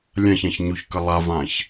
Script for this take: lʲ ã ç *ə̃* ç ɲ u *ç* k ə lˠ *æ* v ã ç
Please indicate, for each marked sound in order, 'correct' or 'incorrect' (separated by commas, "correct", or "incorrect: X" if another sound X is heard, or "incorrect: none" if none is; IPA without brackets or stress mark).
incorrect: ã, correct, incorrect: a